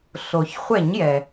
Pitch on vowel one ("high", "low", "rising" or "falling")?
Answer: low